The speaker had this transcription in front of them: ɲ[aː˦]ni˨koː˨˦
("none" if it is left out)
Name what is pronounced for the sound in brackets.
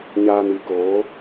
aː˨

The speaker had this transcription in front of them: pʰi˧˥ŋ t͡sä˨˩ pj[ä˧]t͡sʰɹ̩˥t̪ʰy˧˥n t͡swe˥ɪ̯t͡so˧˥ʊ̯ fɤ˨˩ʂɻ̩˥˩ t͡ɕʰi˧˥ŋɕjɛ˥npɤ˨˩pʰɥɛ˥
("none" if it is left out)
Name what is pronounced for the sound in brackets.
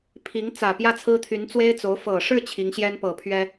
ä˥˩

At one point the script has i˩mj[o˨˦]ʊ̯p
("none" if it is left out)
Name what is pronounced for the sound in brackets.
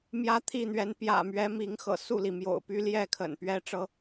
o̰˨˩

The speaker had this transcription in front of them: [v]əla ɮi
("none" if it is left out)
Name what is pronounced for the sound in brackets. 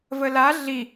v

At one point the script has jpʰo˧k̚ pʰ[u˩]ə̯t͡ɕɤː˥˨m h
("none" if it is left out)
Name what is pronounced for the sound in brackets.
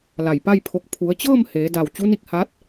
u˩˧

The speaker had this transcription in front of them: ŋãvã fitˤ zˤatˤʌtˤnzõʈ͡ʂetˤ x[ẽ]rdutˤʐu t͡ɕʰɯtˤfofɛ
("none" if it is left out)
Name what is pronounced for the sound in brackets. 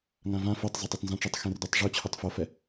ẽ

